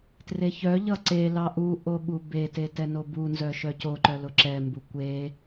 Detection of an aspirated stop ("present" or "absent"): absent